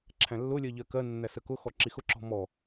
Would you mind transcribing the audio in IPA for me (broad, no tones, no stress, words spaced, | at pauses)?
ǁʰæ̃lːʊlʲɜ ʎɜkɜnːæ səkʊxɔ ǁixʊǁɔ̤ mɔ